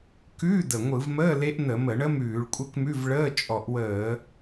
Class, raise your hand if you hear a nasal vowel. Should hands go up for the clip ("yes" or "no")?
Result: no